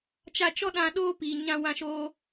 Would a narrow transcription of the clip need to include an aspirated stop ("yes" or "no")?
no